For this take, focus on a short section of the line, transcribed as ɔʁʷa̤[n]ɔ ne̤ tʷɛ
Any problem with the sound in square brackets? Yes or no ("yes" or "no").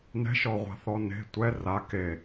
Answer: yes